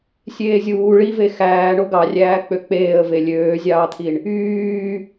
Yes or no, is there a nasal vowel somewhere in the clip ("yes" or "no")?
no